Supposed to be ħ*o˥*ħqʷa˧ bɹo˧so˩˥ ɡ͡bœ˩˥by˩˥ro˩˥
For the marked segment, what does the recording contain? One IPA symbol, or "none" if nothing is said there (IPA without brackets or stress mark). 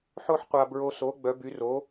o˥